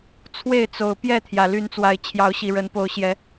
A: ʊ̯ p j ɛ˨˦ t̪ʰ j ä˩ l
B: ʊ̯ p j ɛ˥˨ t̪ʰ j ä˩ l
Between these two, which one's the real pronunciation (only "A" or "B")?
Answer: B